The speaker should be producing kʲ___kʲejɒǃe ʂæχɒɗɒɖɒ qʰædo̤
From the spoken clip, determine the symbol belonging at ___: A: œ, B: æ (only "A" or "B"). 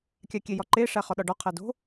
B